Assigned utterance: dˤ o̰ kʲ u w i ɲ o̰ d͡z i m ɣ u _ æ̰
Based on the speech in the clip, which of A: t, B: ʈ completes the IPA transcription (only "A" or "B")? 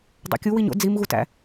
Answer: A